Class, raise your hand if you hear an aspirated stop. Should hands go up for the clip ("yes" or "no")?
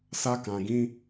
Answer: no